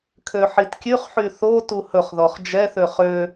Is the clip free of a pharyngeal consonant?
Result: no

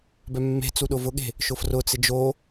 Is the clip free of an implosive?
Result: no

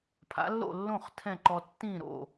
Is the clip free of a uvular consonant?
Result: no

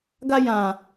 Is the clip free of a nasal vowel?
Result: no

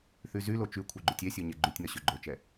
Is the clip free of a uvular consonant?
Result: yes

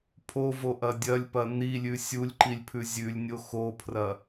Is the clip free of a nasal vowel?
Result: yes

